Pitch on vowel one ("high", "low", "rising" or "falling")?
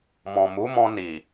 low